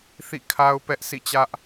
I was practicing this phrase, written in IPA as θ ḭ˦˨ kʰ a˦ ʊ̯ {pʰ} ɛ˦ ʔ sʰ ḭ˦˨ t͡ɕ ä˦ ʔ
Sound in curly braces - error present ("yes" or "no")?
yes